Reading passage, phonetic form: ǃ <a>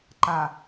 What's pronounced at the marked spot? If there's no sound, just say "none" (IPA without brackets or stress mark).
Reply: a